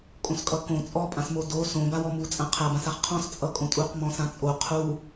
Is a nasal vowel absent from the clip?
no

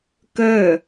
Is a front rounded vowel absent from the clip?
no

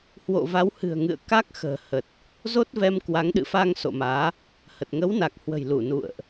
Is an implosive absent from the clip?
no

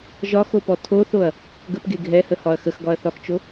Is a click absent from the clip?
yes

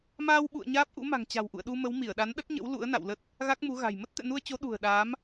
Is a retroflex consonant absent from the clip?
yes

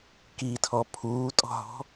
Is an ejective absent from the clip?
no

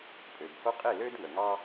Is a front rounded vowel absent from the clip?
no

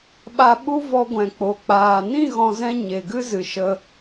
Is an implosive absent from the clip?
no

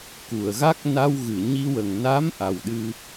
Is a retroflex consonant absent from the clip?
yes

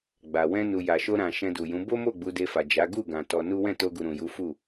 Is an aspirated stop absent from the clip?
yes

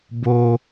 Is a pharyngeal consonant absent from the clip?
yes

